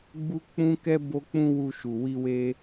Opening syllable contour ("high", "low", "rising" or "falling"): high